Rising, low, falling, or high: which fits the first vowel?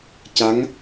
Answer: rising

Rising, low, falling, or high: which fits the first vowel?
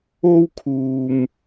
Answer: high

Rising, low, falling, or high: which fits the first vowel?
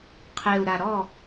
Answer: low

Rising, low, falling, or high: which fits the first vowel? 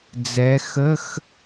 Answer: rising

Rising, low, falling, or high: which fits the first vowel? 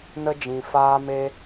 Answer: high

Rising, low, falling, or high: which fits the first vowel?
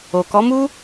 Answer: low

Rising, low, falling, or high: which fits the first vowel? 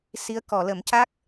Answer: rising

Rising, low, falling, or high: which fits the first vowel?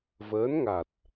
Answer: rising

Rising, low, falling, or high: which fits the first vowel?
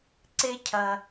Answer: high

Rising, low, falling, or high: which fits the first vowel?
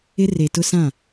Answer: high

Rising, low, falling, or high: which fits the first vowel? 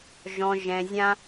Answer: low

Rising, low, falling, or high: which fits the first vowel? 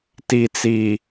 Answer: low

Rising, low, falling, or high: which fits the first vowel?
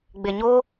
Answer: low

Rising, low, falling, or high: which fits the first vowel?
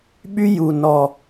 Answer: high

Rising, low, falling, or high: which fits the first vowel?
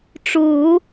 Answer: low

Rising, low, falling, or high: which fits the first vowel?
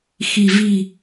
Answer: low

